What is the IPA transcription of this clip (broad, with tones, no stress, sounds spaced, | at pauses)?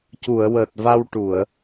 c u˨˩˨ ə̯ w əː˨˩ t̚ v a˧ w ʈ u˨˩˨ ə̯